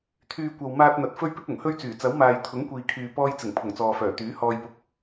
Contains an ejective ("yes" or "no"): no